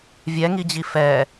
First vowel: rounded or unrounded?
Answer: unrounded